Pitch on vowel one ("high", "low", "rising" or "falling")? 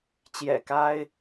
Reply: low